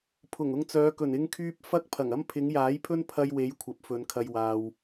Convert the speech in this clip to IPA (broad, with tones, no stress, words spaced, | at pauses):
pʰʊ˨˩ŋʊ˧ŋt͡sœː˨˧ kɵ˨˩nɪ˥ŋkʰyː˥p̚ fɐ˥k̚ pʰɐ˨˩ŋɐ˥m pʰɪ˨˧ŋjaː˨˥jpʰɵ˥n pʰɐ˧jwe˨˧j kʷʰɐ˨˥p̚fɵ˨˧nkʰɐ˧j waː˨w